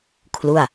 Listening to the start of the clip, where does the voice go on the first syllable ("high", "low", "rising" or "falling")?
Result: falling